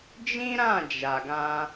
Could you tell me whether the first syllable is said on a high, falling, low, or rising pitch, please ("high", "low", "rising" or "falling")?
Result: high